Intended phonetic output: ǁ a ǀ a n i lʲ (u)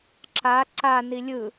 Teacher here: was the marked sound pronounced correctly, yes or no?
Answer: no